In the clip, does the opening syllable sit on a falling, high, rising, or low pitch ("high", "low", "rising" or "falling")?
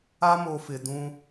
high